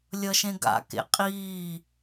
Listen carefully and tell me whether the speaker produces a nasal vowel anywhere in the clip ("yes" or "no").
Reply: yes